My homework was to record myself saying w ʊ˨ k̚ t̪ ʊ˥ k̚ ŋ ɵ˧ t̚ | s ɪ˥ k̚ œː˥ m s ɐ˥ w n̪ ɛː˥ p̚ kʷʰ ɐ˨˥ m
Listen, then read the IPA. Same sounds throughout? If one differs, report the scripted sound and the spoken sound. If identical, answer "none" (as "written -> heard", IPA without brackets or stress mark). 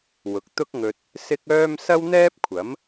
none